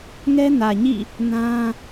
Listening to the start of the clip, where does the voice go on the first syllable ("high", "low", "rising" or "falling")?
high